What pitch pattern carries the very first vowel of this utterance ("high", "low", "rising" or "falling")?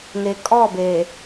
low